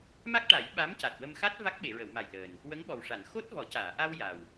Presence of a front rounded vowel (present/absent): absent